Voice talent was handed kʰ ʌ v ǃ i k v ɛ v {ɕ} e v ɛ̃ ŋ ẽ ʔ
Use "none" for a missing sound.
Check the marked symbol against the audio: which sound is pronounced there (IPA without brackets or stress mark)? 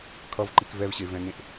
ɕ